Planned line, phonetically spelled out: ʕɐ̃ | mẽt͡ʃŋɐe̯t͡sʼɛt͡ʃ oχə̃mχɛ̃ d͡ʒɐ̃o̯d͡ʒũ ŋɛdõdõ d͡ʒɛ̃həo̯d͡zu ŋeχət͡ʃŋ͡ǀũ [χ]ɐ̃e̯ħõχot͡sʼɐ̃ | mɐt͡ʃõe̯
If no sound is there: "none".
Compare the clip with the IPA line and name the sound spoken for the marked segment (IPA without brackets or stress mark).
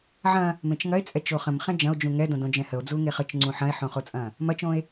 ħ